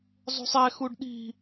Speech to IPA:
zˤṳsˤɛxuɖ ɗi̤

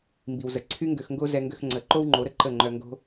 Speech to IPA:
mbi˨wzə˨ǀʰy˦ ŋɡø˧xŋɡo˦ zɛ˧ŋɡø˧x ŋ͡ǀə˨˦ ǃo˦wŋ͡ǃo˨˦ɾə˦ ǃə˦˨ŋ͡ǃœ˧ ŋɡo̤˦

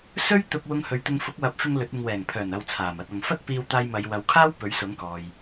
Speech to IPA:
sɵ˥ɥt̪ʊ˧k̚ wʊ˧ŋhɵ˨ɥt̪ʊ˧ŋ fʊ˨˥k̚wɐ˨˥p̚fɪ˧ŋ lɵ˨˥t̚ɪ˧ŋ wɛː˨˩ŋpʰœː˨˩nɐ˨w t͡sʰaː˨˩mɐ˧t̚ɐ˨ŋ fɐ˥t̚piː˧wt̪aː˧j mɐ˨˧j wɐ˨˧wkʰaː˥w pɵ˨˥ɥsʊ˨˥ŋkɔː˨j

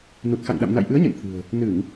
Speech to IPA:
nu˨˩t̚xa̰˧˨ŋɗa̰˧˨m na̰˧˨jʔɨ˨˦ə̯ɲə̰˧˨n t̪ʰɨ̤˨˩ə̯ | nɨ˧˩˨ŋ

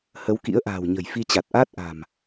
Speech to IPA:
hə˨˦wkḭ˧˥ə̯ʔa̤ː˨˩w ɲə̤˨˩jfi˧t͡ɕa˨˩t̚ʔaː˦˥t̚ ʔa̤˨˩m

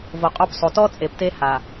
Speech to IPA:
vo˨qʼo˦psˤo˨ tɔ˦ t͡sʼe˨pte˦ha˨

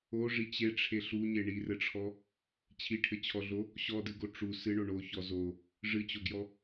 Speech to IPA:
oʐi t͡ɕeʈ͡ʂʰe ɬuɲe ɳirɘʈ͡ʂʰɔ | t͡ɕʰiʈʰɘt͡ɕʰɔɮo | ɕɔdɨɡo ʈ͡ʂu sɨɳo ɳoçɔ zo | ʐɨt͡ɕoɡjɔ

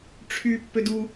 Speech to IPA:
ʈ͡ʂʰy pːødu

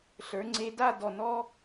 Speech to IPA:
ɬə˞˩˧ŋ͡ǀe˧da˥˧dɔ˧˩ nɔ˥

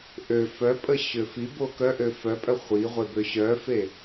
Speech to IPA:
ʔø fœpʼə ɕøfibo kœʔø fœpʼœ χʷiʁʷe bøɕœfe

